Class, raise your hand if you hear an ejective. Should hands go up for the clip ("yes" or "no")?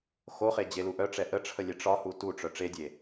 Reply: no